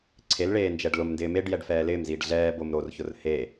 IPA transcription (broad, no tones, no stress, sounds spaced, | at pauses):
ǀʰ e l ɭ eː n d͡ʒ ɛ ɖ l ʊ m n d ɪː m e ɖ j ɛ ɖ f ɛː l ɪː m z iː ɖ ɮ ɛː b o m ɾ o r ç ʊ r h e